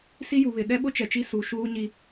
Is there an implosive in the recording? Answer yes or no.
yes